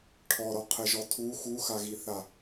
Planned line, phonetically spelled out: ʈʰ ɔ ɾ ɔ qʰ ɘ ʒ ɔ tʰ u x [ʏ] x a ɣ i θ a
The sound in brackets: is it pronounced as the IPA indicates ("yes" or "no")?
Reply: no